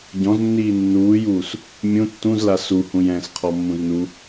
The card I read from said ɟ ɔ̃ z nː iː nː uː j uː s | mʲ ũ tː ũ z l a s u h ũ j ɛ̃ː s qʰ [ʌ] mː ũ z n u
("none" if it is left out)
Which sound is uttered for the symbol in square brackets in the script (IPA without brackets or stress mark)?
ɔ